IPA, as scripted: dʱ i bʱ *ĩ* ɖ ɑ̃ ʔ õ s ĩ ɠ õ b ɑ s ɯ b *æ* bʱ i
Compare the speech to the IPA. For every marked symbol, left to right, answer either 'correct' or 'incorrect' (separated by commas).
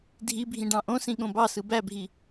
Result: correct, correct